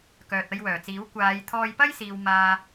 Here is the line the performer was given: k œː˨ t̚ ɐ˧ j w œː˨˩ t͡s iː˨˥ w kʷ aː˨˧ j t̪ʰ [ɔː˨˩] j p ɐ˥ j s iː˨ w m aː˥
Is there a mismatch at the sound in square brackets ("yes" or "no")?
yes